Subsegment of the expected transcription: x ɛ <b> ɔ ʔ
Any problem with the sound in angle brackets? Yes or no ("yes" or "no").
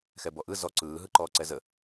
no